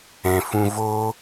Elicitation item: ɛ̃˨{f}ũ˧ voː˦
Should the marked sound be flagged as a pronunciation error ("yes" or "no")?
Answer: no